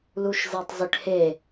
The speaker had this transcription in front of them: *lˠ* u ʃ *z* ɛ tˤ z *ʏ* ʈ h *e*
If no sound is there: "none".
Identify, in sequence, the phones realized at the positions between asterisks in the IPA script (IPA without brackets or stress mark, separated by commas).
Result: l, z, ʏ, e